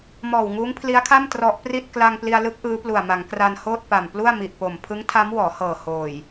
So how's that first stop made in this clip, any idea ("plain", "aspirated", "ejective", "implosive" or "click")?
aspirated